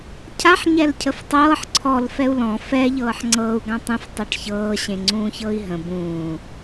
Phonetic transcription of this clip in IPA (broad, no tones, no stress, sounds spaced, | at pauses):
cʰ a ħ ɲ ɛ l cʰ ə f tˤ ɤː ħ ǀʰ ɔ l f ɛ u̯ l ɔ̃ f ɛ ʎ ɤː ħ ŋ͡ǀ ɤː u̯ ɡ ã tˤ ɛ̃ f tˤ ɤ ʈ ç ɤː ɕ ẽ ŋ͡ǀ ũː ç ɤ i̯ ɦ ə̃ b ũː